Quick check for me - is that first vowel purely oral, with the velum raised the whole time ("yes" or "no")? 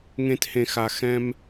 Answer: no